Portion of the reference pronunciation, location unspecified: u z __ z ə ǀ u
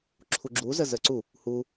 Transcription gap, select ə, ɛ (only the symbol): ə